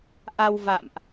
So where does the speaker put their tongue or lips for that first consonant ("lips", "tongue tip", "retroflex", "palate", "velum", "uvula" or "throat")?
throat